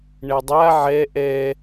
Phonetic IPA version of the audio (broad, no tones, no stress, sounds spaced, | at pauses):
ɳ ɛ dˤ a ʕ ɛ ʔ ɛ